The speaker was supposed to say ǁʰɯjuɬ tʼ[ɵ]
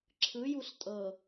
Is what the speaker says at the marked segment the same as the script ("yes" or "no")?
no